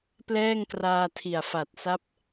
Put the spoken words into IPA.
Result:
p l ɛː˥˩ ŋ k r aː˧ tʰ i˨˩ a̯ f a˨˩ t̚ s a˦˥ p̚

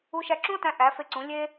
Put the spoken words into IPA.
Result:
u˧ ʃ æ˧ ǁ ũ˦ o̯ t æ̃˧ ʔ æ˨˦ f e˧ ǀ ũ˨˦ lʲ e˦

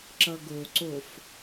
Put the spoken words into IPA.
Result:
ǁ ʌ ɡ o ǀ o f

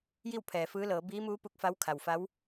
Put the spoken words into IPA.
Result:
j i˥˨ w pʰ ɛː˩ f ɯː˧˥ l ɤː˩˧ b iː˧˥ m uː˧˥ p u˧ k̚ f a˧˥ w kʰ a˩ w f a˧˥ w

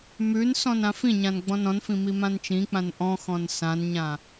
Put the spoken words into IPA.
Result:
m ʉ n s ɔ̃ n ã f ĩ ɲ ã n ɡ͡b ɔ̃ n ɔ̃ n f ĩ m i m ã n t͡ʃ ĩ k͡p ã n ʔ ɔ̃ x ɔ̃ n s ã n ɲ ã

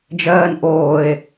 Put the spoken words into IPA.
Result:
d͡ʒ ɜː n ʔ oː e̯

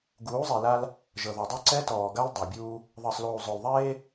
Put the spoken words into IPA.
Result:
ɡ uː˨˦ zˤ i˨ l a˦ l | ʒ ɤ˨ ð ɔ˨ dˤ o˦ ǀ ɛ˦ t ɔː˨ ɡ a˦ l dˤ a˨ bʲ uː˦ | ðˤ ɤ˨ sˤ l uː˨ zˤ o˨ l ðˤ eː˦

